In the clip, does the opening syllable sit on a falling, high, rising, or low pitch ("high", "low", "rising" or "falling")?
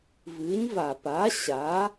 rising